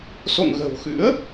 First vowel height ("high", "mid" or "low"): mid